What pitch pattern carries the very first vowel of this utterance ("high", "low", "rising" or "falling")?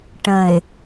low